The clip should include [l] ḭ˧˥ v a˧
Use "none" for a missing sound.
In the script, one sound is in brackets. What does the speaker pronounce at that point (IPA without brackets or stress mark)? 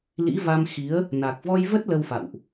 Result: l